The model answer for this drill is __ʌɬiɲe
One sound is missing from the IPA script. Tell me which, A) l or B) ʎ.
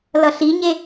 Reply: A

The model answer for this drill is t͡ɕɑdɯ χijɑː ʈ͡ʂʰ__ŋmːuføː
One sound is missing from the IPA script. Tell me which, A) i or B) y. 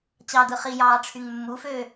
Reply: B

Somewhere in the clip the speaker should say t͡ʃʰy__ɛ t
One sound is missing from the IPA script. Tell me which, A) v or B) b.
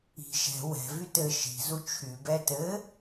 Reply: B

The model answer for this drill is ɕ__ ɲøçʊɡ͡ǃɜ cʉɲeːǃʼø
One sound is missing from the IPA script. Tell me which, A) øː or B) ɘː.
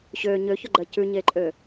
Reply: A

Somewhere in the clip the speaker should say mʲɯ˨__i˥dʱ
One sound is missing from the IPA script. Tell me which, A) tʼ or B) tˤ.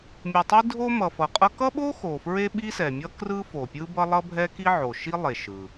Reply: B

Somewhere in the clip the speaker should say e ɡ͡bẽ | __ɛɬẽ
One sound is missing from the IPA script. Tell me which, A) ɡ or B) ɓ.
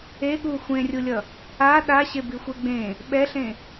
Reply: B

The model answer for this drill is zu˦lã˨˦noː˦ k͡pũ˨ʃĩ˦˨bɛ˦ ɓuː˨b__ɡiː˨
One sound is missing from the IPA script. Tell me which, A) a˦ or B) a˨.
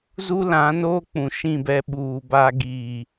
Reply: A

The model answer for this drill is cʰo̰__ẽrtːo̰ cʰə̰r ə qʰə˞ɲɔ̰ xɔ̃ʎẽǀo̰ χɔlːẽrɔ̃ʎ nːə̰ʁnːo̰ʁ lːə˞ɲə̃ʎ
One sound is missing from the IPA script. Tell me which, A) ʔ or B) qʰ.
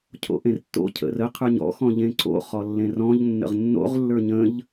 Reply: A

